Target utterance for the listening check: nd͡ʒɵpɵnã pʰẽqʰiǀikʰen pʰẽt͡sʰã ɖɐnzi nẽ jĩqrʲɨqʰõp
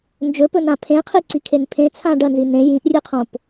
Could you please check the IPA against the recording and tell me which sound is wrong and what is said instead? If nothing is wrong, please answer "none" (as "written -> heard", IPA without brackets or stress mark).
q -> ʔ